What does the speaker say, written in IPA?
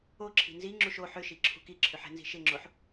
o ǁʰ i̤ n z i ŋ͡ǁ u ʃ o ħ ʏ ʃ i ǁʰ ṳ k i ǁʰ ʏ ħ ɛ̤ n z i̤ ʃ ɪ ŋ͡ǁ o ħ

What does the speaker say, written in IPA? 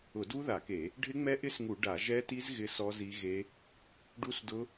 ʊ˧˩˧ d u˦˥ ð a˧˩˧ k e˧˩˧ | ɖʱ ɪ˦˥ ŋ͡m ɛ˦˥ ʔ ɪ˦˥ s ŋ u˧˩˧ ɖ a˧˩˧ ʒ ɛ˦˥ t i˦˥ z ɣ ɪ˦˥ s ɔ˦˥ z i˦˥ ɣ e˦˥ | ɖ u˦˥ s d ʊ˦˥

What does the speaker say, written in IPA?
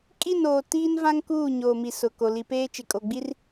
kʼ i˦˨ n oː˨ t iː˦ n v ã˦ ŋ k uː˦˨ ɲ oː˨ m i˨ s ʊ˨ k o˨ l i˨ p eː˦ t͡ʃ ɪ˨ kʼ o˨ ɡ͡b i˦ r

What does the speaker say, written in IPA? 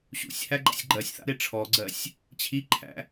ɕ ṵ sʲ h æ ɡ͡ǃ a̰ sʲ ɡ͡ǃ ɜ sʲ θ a̰ ɾ e ʈ͡ʂʰ ɔ ɡ͡ǀ ɜ sʲ | t͡ɕʰ i ǃʰ æ̰

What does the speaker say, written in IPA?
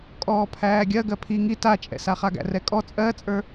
kʼ ɔː pʰ æː ɡʲ ɜ ɡ ɜ pʰ i ŋ i t a t͡ʃʼ ɛ̰ s a χ a ɡ æ̰ r ɛ kʼ ɔ t͡sʼ ɜ t͡sʼ ə˞

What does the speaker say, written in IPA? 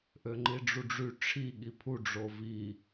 ʔ ø ŋ͡ǃ i ɖ͡ʐ u ɖ͡ʐ y ʈ͡ʂʰ i ɠ i pʰ u ɖ͡ʐ o v i

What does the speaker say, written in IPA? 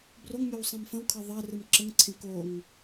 b r o ŋ mʲ o w sˤ ĩ m f ə̃ w kʰ ɜ ðˤ ɜ r ɨ m ǁ ə ŋ ǀʰ ẽ k o ŋ

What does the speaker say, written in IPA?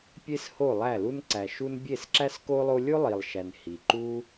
pʲ e˦ s h o˦˨ lˠ æ˦˨ l u˦ n ǀ æ˨ ʃ u˦ n bʲ e˦˨ s ǁ æ˦ s k o˦ lˠ o˦ lʲ o˦ lˠ i˨ lˠ ʃ æ˨ n h i˨ ǃ u˦

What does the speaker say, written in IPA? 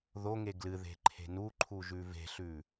ð o ŋ e ɡ l ɨ ð e̤ ǃʰ e̤ n u ǃʰ u ʒ ʉ v e̤ ɬ ʉ

